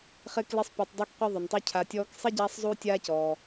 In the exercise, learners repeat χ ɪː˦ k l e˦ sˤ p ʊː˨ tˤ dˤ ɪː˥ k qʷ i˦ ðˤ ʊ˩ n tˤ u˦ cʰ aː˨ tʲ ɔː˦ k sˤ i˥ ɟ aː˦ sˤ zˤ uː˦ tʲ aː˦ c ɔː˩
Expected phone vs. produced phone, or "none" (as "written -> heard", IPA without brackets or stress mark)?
none